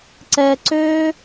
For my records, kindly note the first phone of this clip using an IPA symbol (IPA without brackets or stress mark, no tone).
ǀ